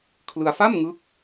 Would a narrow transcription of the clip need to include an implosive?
no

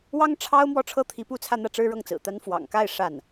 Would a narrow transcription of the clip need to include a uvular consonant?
no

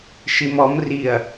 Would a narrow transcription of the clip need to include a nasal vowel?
no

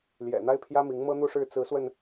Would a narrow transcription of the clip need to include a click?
no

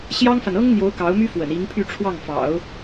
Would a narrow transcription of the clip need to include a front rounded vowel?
yes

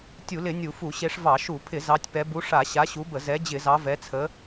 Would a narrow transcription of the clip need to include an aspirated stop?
yes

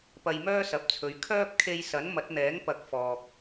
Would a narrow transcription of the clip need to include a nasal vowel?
no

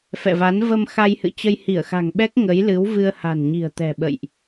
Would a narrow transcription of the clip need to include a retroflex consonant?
no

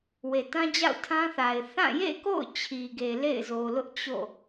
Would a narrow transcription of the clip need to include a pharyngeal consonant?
no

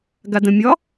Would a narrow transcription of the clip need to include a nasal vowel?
yes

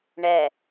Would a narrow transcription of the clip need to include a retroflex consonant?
yes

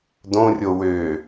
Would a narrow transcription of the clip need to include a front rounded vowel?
yes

